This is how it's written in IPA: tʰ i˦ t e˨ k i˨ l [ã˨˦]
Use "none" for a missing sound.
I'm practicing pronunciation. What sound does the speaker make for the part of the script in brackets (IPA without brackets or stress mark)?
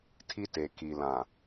ã˨